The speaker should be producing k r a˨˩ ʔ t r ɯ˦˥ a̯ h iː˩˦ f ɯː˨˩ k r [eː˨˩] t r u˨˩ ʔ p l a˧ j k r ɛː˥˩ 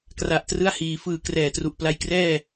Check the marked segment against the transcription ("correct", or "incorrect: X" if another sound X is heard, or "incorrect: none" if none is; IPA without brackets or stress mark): incorrect: ɛː˨˩